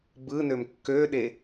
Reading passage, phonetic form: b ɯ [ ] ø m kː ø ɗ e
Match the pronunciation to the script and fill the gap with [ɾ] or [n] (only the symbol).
n